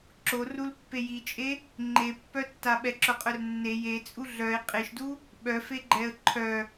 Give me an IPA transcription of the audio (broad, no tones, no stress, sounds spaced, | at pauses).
ǁ o r u l pː e j i t͡ʃʼ e | ŋ͡ǃ e pː œ tː a ɓ ɛ ǁ œ qʼ œ r nː e j e t͡sʼ u ɮ œ ɪ̯ qʼ e ʃ d u | ɓ œ f e ɡ͡ǃ ɛ ə̯ ǃʰ œ